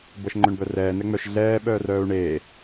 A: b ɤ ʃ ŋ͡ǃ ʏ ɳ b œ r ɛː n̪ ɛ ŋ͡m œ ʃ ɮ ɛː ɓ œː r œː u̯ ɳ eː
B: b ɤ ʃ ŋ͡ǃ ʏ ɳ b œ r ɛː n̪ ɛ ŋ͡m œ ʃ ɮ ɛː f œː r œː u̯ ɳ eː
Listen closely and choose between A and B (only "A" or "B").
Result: A